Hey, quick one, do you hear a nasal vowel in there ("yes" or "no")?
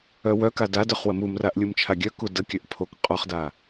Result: no